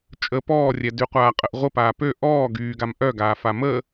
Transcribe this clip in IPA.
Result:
t͡ʃʼ ə p ɔː rʲ ɛ d y qʷ aː qʼ ə ʔ ʁʷ ə p aː p ø ʔ ɔː ɡ yː ɡ a m ʔ œ ɡ aː f a m ə

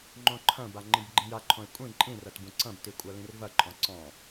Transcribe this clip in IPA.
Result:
ŋ͡ǃ õ ǃʰ ɐ̃ b a ŋ͡ǃ ĩ b ɡ͡ǃ ĩ j a ǃʰ õ e̯ kʷʼ ĩ ǃʼ ĩ r ɐ t b ũ ǀ ɐ̃ b t i kʷʼ a l ĩ r v ɐ ǃʼ ɔ̃ ǀ ɔ̃

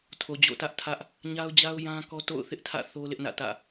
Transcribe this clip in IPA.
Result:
tʰ o˨ d͡ʑ o̰˦˨ t ä˦ ʔ tʰ ä˦ ʔ | ɲ a˦ ʊ̯ d͡ʑ a˦ ʊ̯ j ã˦ k ɔ˦ t o̰˦˨ ʊ̯ θ ɪ˦ ʔ tʰ ä̰˦˨ θ o˦ l ɪ˦ ʔ n ä̰˦˨ t ä̰˦˨

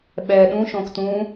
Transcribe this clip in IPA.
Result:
ɓ ɛ ɗ ũ ʃ õ k t ũ

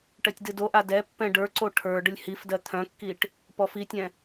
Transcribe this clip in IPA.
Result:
ʈ ɜ tʲ d ɨ d o ʔ a d ɛ pː ɛ̃ ɖ ə˞ ǀ o ʈʰ ə˞ ɖ ə lʲ h i f d ɜ t̪ʰ œ̃ kː i ʈ | p ɔ f i tʲ ɛ̃

